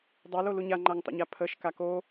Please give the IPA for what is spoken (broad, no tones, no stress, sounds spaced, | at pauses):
dˤ ɜ l o l u ɲ a ŋ͡ǃ a ŋ tˤ ə̰ ɲ a pʰ ə ʃ k a k o